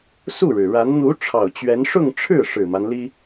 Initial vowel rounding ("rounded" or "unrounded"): rounded